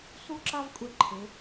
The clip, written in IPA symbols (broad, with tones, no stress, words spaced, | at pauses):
su˥ǁa˥v kʷʼɛ˧ǃʰe˩˧